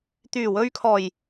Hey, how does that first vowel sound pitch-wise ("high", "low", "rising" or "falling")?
low